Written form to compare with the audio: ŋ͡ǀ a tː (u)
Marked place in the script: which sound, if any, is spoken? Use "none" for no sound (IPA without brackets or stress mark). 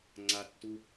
u